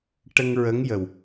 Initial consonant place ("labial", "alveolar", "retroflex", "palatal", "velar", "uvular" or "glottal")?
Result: retroflex